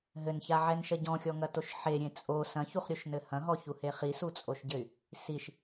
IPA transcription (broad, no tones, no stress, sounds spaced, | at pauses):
ɦ ɘ n ç a ʕ ɛ n ʃ ɐ ɟ ɔ̃ xʲ ɔ ŋ ɐ t o ʃ ħ e ɾʲ ẽ t͡sʼ o s ɐ̃ ç u χ ɾʲ o ʃ n ɘ h ɐ̃ ɦ ɔ ç u h e χ i s u t͡sʼ o ʃ ɟ ɘ y̯ | s i ʃ